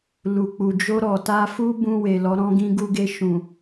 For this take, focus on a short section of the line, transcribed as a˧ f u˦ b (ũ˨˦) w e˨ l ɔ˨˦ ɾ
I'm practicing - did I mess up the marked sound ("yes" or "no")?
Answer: yes